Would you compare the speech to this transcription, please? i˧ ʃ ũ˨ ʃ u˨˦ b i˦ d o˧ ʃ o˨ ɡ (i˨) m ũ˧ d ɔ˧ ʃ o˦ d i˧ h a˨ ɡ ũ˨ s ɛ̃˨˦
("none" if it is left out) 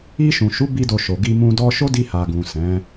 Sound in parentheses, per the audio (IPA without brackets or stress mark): i˧